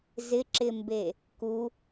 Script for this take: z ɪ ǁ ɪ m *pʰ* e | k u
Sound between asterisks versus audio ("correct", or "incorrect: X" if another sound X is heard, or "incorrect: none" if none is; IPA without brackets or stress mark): incorrect: b